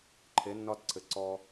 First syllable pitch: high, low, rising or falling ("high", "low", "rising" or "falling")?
rising